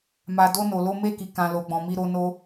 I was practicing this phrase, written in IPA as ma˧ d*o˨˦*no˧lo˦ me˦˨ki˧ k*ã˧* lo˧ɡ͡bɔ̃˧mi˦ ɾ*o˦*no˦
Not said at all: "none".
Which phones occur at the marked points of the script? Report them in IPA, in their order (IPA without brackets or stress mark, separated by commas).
o˦, ã˧, o˦